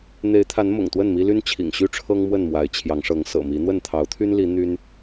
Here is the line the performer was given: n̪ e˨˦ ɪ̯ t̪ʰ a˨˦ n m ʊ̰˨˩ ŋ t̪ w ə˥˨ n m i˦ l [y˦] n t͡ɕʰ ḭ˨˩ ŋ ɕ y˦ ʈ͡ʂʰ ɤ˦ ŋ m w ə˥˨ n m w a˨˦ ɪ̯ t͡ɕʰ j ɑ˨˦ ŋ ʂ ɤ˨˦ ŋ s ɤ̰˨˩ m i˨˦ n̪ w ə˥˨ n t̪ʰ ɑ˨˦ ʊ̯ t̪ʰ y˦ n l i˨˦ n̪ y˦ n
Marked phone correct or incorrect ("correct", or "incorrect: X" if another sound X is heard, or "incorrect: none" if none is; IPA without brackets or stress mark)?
correct